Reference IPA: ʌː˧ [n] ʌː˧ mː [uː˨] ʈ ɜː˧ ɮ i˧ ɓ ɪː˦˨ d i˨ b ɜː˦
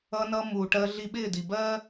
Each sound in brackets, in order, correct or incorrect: correct, correct

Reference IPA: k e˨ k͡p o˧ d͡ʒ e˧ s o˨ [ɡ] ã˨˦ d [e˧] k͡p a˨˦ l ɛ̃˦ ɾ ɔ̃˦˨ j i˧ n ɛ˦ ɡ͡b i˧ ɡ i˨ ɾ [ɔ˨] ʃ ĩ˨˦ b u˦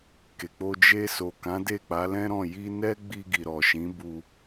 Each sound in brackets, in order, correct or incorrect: incorrect, incorrect, correct

